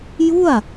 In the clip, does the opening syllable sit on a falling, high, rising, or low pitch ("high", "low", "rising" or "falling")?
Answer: falling